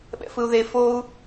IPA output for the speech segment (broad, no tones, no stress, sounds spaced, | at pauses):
ɓ ɛ̰ f ɯ u̯ ð e f o u̯